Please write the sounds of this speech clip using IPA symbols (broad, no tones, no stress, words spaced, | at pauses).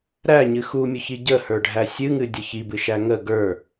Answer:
ɾæɲɨ xumʲʊçi ɟəhə˞ɖʱæ sʲɨŋɨdʲə çibɨʃæ ŋə ɡə˞